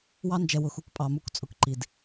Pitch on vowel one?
high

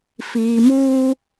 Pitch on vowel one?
low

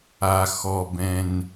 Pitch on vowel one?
low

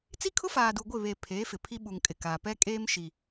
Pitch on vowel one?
high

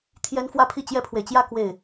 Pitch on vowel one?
high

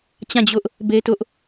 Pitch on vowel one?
falling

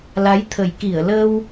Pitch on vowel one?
rising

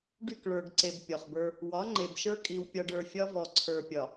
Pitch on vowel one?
falling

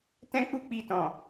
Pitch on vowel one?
high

